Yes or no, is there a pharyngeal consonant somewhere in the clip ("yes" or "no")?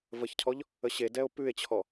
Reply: no